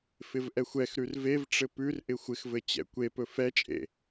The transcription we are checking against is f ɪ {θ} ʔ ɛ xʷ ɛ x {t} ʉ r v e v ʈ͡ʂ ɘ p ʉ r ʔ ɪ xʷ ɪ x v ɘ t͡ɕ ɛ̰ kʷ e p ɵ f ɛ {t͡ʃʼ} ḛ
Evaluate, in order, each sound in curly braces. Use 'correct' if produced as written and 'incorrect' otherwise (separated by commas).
incorrect, incorrect, correct